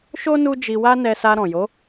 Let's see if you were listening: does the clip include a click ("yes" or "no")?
no